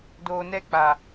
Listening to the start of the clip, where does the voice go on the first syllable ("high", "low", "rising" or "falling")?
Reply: low